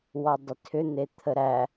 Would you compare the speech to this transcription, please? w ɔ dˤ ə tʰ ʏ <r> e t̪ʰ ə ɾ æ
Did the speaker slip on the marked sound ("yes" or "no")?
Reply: yes